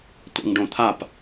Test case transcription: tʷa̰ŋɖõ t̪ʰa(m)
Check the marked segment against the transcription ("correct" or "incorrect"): incorrect